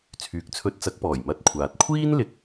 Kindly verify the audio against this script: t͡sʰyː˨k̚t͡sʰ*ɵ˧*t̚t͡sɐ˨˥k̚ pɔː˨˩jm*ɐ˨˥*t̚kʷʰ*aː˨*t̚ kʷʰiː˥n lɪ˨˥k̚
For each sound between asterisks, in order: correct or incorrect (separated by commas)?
correct, incorrect, correct